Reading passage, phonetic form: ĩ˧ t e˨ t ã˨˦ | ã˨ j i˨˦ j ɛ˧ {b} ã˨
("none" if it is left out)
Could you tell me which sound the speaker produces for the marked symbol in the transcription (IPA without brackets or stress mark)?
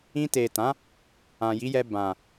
b